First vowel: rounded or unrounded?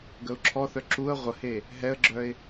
unrounded